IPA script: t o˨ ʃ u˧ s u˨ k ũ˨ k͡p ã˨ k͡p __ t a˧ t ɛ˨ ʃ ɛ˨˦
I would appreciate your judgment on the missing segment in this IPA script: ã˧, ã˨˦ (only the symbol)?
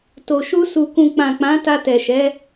ã˨˦